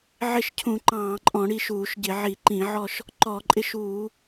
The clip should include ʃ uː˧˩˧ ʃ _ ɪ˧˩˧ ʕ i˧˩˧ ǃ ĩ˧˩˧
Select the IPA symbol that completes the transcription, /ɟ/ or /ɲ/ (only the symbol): ɟ